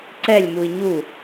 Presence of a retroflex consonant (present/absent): absent